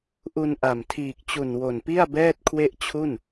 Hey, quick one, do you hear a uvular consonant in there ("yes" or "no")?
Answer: no